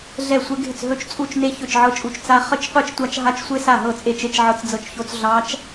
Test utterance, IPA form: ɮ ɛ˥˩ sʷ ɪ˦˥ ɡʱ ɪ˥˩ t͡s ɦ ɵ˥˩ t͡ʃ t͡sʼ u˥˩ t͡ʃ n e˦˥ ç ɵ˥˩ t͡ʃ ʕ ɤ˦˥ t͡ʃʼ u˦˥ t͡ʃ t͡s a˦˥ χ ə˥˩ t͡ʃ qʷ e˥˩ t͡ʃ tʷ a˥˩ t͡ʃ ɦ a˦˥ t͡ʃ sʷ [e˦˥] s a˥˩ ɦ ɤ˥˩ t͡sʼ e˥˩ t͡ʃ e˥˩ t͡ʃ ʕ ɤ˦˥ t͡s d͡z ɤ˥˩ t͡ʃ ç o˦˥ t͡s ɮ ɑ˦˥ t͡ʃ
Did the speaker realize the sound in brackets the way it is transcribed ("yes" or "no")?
yes